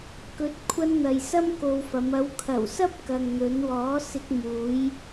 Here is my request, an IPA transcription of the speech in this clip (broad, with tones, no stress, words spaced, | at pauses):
kɵ˨˥t̚kʷʰɐ˧nn̪ɐ˨j sɐ˥mko˧wfɐ˨˧m ɐ˨˧wkʰɐ˨˩wsɐ˥p̚ kɐ˨ŋn̪ɵ˨˧n wɔː˨˥sɪ˧k̚muː˨˧j